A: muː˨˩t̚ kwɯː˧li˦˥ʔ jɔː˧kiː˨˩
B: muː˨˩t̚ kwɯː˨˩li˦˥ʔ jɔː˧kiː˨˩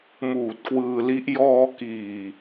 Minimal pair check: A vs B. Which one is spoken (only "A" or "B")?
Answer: A